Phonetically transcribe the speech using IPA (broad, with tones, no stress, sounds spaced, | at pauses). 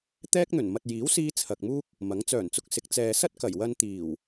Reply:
t̪ ɛː˥ k̚ n̪ ɵ˨˩ n m ɐ˨ t̚ j iː˨˥ w s iː˧ t͡sʰ ɐ˨ k̚ m uː˥ k̚ | m ɐ˨˥ ŋ t͡s œː˨˩ n t͡s ʊ˧ k̚ s ɪ˨˥ k̚ t͡s ɛː˨ s ɐ˥ t̚ k ɐ˨˩ j w ɐ˧ n t̪ iː˨˩ w